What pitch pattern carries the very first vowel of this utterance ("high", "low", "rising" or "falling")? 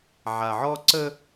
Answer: low